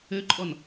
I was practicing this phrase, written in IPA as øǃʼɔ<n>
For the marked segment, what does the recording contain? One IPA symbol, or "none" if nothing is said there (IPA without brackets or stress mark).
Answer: n